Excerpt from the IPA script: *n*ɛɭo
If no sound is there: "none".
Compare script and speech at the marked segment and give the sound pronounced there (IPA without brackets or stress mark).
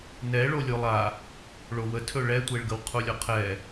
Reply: n